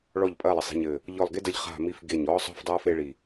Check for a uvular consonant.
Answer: present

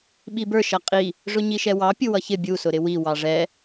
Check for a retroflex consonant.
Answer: present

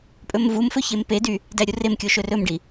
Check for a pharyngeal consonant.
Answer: absent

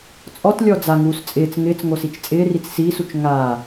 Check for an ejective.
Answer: present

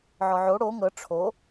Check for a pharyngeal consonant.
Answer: present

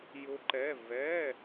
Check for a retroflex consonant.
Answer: absent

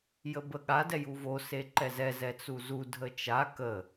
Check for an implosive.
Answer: present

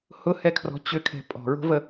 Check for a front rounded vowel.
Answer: present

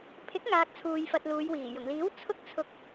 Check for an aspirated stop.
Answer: present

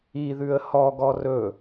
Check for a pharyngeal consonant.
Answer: absent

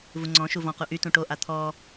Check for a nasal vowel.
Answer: present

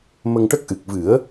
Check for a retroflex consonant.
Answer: present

